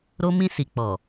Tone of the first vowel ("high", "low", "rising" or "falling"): high